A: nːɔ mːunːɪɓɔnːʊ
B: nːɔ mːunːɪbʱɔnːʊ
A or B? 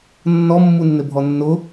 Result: B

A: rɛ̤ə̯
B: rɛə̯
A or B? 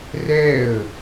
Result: B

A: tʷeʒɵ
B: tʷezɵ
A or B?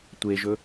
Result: A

